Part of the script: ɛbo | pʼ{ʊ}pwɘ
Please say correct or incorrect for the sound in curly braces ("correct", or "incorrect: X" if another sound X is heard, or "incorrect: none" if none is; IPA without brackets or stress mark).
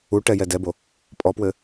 incorrect: ɔ